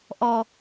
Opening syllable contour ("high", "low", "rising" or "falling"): low